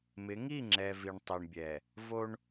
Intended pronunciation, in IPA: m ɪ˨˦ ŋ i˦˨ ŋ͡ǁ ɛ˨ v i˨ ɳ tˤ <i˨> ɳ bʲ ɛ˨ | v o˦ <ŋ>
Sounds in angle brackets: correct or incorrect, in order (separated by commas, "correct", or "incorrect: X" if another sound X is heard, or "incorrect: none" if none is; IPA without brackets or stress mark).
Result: correct, incorrect: ɳ